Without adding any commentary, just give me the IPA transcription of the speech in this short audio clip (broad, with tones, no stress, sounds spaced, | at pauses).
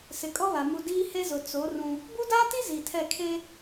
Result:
s ɪ˨ kʼ ɔ˦ β a˨ m u˨ d iː˦ h e˦ z ʊ˨ t͡s o˨˦ r ũ˦ | b u˦ d aː˦ t i˦ z i˨ tʰ ɛ˦˨ kʰ e˦